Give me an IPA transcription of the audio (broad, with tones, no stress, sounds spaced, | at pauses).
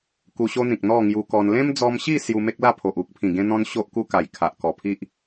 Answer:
k u˧ ɕ o˦ n̪ ĩ˨ k̚ n̪ ɔ˥˧ ŋ j u˧ k ɔ˧ n l ẽ˦ m d͡z ɔ˧ m ɕ i˥˧ s j u˧ m e˦ k̚ l a˥˧ pʰ o˨ ʔ u˦ k̚ pʰ ĩ˨˩ ɡ ẽ˦ n̪ ɔ̃˦ n ɕ o˦ ʔ k u˦ k a˨˩ j kʰ a˨ ʔ k ɔ˨˩ pʰ i˦ ʔ